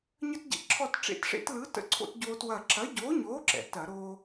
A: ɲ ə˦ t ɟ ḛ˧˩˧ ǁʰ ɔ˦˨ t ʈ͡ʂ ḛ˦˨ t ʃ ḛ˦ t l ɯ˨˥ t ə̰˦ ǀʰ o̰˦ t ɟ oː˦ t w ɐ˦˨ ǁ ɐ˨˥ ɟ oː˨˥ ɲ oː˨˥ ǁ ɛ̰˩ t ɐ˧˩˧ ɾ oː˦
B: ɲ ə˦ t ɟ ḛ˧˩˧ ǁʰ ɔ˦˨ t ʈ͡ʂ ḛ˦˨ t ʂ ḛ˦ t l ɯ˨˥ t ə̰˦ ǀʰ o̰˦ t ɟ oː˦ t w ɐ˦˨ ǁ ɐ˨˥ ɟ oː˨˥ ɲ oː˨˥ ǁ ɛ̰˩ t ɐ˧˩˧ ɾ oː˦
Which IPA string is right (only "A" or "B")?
B